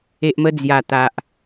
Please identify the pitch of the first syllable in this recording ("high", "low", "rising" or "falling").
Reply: low